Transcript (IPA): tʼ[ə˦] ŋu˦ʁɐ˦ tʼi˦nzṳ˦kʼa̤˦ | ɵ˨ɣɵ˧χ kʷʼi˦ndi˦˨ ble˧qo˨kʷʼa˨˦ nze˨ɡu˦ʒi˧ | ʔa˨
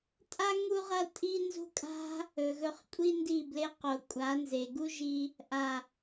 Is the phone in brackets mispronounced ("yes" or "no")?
yes